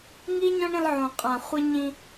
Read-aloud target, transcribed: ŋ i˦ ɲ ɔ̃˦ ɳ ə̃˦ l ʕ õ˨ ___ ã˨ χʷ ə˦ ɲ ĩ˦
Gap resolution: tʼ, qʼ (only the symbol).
qʼ